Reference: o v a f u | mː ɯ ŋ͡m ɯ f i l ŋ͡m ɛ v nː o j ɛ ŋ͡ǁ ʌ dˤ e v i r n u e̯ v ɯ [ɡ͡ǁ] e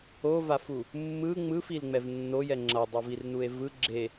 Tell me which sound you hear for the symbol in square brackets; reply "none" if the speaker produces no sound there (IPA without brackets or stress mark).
ɡ͡ǁ